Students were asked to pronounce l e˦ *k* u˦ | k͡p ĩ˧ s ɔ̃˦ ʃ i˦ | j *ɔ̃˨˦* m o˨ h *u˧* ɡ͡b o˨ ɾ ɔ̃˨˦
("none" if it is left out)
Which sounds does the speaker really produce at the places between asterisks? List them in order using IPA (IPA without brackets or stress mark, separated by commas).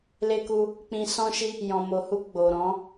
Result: k, ɔ̃˨, u˧